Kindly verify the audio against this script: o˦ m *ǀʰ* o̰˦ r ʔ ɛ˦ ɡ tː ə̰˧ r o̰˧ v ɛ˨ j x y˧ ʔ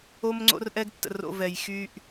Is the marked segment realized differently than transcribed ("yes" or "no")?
yes